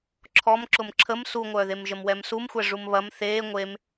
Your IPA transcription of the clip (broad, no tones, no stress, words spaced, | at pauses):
ǁʰɔmǁʊm ǁʰəm suŋʷœːðemʒəm wɛmsumxʷɛ ʐumβɐm θeː ŋʷem